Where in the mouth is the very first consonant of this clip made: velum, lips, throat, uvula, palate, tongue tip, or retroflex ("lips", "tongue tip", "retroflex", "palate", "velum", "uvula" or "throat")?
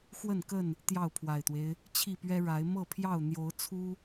velum